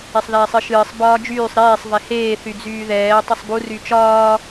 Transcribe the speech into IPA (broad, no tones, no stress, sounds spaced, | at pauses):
e sˤ ð ɛː sˤ ɨ ʃ ɨː sˤ b ɒː d͡ʒ yː sˤ ɾ eː sˤ v ɛ h eː θ y d͡z yː ð ɛː tˤ ɨ sˤ b u r y t͡ʃ ɒː